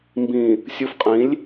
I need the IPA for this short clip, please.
m b ĩ˨ | sʲ u˨ f qʼ ĩ˨˦ lʲ

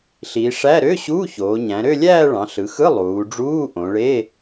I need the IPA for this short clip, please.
ɬ i˩˧ ʂ æ˧˥˧ ɾ ø˧˥˧ ɕ uː˧˥˧ ç oː˩˧ ɲ æ̃˩˧ ɾ ø˥˧ lʲ æː˥˧ ɭ ɑ̃˩˧ ɬ ɯ˩˧ x ɯ˧˥˧ lˠ uː˩˧ ɖ͡ʐ uː˧˥˧ ʔ õ˩˧ ɭ e˧˥˧

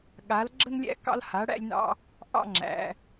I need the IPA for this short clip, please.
ɠ a˨˦ l ɡ͡ǁ ə˦ n lʲ æ̰˦ k ɑ̰˦ l h a˨˦ ɽ æ̰˦ lʲ n ɑ̰˦ | ʔ ɑ̰˦ ŋ͡ǁ æ̰˨˦

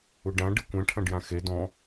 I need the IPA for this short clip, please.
u ɖ ã ɖ ɨ kʷ ɛ̃ ʈʰ ɐ̃ ɖ j ã x e d ɔ̃

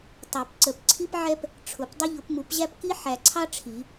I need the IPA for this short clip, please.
tˤ ɛ˨˩˦ p ǀ ə˨˩˦ p ǀʰ i˥ p ʕ ɛ˥ p | ʈ͡ʂʰ ʊ˨˩˦ p dˤ ʊ˥ ʎ ʊ˨˩˦ p m u˨˩˦ p ʑ æ˥ p k i˥ ħ æ˨ ǀʰ ɑ˥ ʈ͡ʂʰ i˨˩˦

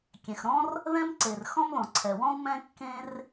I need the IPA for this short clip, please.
kʲ ɛ̃˩ x ɾ ɔ̃˥ r | ð ɛ̃˥ m ǀ e˩ r x ɔ̃˥ m ð ɔ̃˩ ǀʰ ɛ˩ w ɔ̃˥ u̯ m ɛ̃˥ kː ẽ˥ r

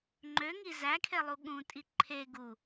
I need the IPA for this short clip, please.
ŋ͡ǃ ø ŋ i z æ kʰ e lˠ u ɠ ũ tʼ i ǃʰ e ɡ u

